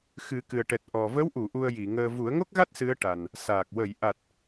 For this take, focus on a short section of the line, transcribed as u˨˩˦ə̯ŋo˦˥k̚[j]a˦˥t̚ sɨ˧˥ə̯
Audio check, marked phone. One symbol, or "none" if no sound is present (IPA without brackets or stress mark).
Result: ɣ